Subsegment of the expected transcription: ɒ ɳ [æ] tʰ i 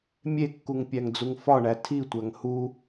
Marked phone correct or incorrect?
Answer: correct